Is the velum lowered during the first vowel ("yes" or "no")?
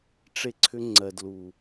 no